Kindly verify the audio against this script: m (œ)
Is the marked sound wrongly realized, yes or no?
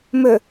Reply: yes